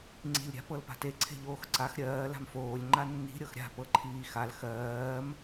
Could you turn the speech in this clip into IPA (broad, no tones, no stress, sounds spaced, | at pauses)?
ŋ͡ǀ i̤ lʲ ɾʲ a̤ p ɤ l p a̤ t e ǀʰ e̤ ʎ oː x ǀ a x ɾʲ ɜː l a̤ m f oː lʲ ŋ͡ǃ a nː i̤ ɾʲ ɤ x ɾʲ a̤ p ɤ ǃʰ iː x a l x ɜː m